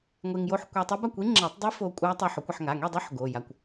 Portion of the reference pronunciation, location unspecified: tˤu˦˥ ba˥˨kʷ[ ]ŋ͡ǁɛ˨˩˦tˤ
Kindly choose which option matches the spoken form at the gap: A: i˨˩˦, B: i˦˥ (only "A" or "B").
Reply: B